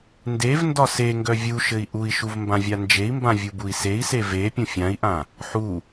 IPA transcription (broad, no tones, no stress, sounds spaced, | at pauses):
n d e v n d ɒ s e ŋ ɡ œ vʲ u ʃ ɘ i̯ ʔ u i̯ ʃ u v m b ã vʲ a n d͡ʒ e i̯ m b ã vʲ u b u i̯ s e i̯ s e v e pʲ ũ fʲ ã i̯ ʔ ã | ħ u